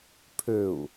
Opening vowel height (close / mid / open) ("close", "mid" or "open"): mid